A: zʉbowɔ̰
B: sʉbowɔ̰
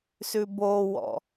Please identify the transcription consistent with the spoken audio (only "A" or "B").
B